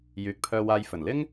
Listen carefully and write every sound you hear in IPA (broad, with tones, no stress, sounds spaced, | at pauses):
j yː˨ k̚ pʰ œː˧ w aː˧ j f ɵ˨˩ n l ɪ˥ ŋ